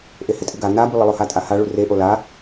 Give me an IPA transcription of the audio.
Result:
ʔehɪtʼɨɡa nabulˠɪlˠo hatʼaha ɭureʔo la

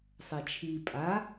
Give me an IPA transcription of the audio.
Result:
sˤɛt͡ʃʰi pʼa

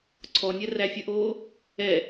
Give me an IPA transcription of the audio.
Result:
ǀʰɔnʲɛ ræfʲəʔoː | ɛ

